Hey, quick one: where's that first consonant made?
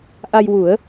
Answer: throat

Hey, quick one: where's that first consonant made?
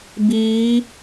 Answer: lips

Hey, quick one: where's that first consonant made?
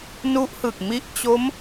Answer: tongue tip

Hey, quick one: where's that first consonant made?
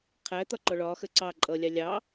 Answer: uvula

